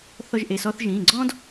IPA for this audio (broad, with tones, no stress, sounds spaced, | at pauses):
θ ɔ˧ ʒ ʔ e˩˧˩ s ɔ˧ θ ʒ ĩː˩˧˩ ɡ͡ǀ ɔ̃˥ d